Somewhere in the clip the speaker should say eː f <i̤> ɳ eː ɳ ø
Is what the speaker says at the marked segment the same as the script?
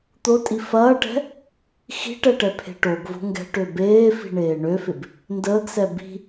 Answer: yes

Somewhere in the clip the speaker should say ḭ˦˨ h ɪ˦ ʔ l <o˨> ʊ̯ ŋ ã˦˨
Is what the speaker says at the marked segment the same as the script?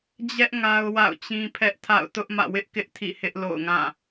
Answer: no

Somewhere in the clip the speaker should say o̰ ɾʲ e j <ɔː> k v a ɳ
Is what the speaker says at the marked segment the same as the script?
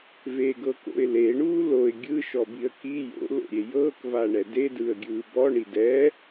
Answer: no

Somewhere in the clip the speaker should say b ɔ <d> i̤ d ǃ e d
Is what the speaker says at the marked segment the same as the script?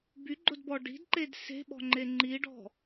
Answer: no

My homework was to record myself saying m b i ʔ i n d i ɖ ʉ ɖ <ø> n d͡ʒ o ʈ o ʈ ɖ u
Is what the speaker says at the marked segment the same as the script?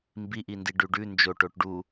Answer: no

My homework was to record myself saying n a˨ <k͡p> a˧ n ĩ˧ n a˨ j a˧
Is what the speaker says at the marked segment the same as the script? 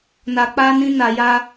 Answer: yes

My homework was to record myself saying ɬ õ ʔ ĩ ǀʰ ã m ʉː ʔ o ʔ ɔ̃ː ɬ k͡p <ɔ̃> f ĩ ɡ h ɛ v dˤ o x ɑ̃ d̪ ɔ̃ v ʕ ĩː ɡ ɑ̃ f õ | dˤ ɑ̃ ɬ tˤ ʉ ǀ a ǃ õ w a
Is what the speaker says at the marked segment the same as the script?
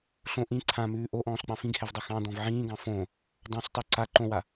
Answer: no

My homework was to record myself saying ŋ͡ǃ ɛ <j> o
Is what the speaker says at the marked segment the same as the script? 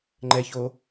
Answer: no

